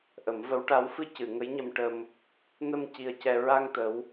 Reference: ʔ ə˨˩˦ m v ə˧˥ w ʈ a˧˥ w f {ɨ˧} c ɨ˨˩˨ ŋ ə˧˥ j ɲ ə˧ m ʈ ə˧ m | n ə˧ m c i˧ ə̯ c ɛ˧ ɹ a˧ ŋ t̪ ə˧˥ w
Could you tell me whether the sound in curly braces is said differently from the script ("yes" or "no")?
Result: no